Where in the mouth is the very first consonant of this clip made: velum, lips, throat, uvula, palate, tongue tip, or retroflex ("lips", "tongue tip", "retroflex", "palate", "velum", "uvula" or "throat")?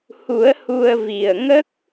throat